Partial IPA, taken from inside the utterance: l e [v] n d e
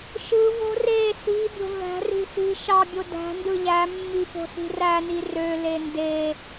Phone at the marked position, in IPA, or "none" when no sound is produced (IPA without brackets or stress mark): none